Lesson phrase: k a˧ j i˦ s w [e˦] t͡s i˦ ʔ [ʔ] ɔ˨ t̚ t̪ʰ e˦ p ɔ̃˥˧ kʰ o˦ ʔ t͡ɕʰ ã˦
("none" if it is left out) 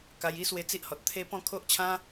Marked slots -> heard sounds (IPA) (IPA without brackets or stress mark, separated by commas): e˧, h